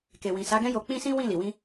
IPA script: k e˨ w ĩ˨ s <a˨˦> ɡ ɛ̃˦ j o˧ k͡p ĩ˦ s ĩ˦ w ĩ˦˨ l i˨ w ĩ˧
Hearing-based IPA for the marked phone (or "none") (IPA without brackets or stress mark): a˨˦